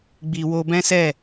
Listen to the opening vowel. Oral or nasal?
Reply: oral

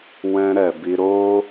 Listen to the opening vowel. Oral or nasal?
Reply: nasal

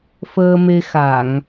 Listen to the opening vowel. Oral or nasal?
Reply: oral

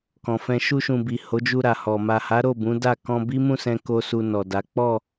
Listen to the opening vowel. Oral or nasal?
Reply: nasal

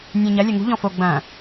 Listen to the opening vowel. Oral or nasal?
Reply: nasal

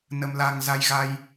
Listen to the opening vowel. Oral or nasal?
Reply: oral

